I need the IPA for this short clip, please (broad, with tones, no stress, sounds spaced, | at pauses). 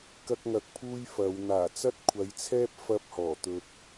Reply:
k ɐ˥ k̚ ŋ ɐ˧ k̚ pʰ uː˥ j f ɐ˨˧ w n̪ aː˨˩ t͡s ɐ˥ t̚ kʷʰ ɐ˨˧ j t͡sʰ ɛː˥ p̚ f ɐ˥ p̚ h ɔː˨˩ t̪ ɵ˨ t̚